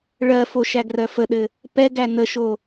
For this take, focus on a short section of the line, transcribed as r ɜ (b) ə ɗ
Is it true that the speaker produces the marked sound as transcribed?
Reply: no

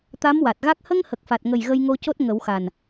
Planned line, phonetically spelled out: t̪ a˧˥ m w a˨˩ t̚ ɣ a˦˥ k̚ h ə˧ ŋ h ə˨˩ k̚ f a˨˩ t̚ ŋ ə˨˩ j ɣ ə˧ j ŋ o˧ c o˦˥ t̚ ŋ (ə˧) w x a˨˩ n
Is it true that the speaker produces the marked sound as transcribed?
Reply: no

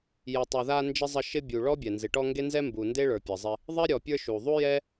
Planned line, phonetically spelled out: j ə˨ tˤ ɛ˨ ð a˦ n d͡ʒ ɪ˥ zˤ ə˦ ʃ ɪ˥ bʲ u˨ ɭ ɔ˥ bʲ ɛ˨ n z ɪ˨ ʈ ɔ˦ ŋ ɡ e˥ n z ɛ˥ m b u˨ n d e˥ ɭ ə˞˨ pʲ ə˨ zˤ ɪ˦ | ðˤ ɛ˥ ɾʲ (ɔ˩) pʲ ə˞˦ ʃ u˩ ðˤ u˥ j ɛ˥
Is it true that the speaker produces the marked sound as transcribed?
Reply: no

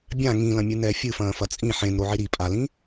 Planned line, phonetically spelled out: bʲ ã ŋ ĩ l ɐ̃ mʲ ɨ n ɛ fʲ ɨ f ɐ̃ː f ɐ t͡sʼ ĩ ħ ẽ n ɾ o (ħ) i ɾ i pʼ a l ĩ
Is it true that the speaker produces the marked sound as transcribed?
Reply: no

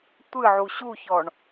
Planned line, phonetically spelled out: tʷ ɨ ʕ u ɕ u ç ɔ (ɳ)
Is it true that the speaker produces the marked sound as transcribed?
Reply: yes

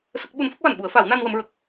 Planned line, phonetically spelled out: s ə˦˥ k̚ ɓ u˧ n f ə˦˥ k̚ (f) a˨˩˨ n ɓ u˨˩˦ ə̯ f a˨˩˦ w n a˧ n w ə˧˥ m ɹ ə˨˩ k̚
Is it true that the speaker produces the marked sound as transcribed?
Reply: no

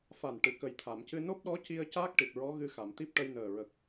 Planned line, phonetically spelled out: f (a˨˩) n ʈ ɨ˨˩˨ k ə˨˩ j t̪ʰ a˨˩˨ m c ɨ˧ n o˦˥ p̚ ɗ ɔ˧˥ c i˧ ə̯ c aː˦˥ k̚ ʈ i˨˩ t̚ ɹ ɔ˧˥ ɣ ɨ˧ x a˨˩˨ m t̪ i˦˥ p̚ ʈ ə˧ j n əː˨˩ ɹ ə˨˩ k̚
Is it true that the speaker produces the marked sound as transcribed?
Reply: yes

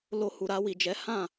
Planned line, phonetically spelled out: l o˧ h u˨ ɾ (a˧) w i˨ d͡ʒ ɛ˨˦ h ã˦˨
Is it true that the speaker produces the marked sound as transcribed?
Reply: yes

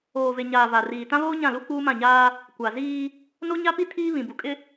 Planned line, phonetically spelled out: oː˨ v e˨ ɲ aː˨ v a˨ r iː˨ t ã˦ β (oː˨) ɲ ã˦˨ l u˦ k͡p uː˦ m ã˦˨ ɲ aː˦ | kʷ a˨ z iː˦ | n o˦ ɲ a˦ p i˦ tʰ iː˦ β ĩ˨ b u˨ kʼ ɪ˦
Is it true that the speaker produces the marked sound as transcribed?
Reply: no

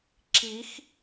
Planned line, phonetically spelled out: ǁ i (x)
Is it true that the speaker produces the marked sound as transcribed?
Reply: yes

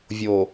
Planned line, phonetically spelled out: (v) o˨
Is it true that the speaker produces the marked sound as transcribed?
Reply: no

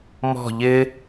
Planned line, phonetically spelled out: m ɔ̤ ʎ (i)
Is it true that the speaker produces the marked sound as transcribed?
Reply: no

